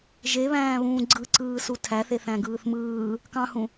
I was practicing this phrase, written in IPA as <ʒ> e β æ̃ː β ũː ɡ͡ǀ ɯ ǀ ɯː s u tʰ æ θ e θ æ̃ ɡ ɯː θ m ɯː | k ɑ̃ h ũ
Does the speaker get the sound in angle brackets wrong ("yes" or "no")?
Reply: no